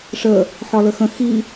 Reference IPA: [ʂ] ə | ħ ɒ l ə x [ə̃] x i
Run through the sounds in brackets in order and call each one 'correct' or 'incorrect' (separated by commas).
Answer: correct, correct